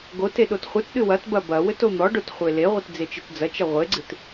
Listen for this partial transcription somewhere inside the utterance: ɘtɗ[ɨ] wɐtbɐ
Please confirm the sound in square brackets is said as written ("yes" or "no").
yes